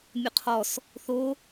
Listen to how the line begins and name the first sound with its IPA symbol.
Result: mʲ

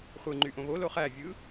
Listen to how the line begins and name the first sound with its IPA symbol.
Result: χʷ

